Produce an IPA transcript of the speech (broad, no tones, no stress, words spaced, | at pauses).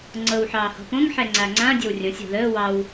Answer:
ŋ͡ǀɤw ħɑːhɔ̤põŋ ħɛŋ͡ǀaŋ͡ǀã dʲowrʲõsʲ ɔ̤ðəː wɑw